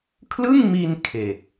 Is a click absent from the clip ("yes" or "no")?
yes